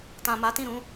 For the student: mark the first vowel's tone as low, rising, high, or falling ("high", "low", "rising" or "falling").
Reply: low